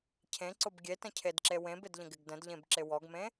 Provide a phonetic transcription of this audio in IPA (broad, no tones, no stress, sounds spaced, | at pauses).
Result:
cʰ ẽ ǀ ʊ b ɡʲ e t ə̃ cʰ e d ǁ e w ẽ b ɪ d ʎ ə̃ ɡ ɪ ɡ d ə̃ d ʎ ẽ b ǁ ɪ w ɔ ɡ m ẽ